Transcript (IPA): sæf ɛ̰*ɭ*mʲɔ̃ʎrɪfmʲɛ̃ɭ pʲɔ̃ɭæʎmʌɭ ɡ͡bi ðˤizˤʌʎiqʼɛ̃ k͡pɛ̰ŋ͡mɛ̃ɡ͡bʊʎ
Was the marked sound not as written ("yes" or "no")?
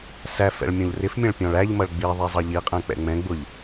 no